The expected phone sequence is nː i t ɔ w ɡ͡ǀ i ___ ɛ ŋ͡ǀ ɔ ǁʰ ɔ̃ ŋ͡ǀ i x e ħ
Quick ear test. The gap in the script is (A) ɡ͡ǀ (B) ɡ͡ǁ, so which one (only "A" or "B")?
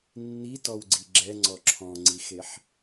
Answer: B